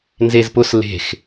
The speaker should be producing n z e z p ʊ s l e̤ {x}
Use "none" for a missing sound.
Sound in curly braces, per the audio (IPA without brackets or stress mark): x